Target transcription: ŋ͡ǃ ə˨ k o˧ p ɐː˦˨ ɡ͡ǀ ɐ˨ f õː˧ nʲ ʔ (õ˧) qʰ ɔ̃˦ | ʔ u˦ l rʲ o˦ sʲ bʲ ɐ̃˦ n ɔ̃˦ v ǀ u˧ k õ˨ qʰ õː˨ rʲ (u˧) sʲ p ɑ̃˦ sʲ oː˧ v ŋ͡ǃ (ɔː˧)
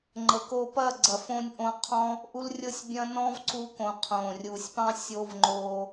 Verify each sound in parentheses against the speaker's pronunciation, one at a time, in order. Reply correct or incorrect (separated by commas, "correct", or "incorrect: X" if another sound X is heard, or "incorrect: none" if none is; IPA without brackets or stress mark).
correct, incorrect: u˨, incorrect: oː˧